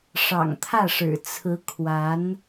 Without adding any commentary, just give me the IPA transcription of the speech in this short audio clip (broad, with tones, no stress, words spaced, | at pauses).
ʂɑ̰˨˩ŋt̪ʰä˥˩ʂɻ̩˨˩ t͡sʰɹ̩˧˥ kʰwa˧˥n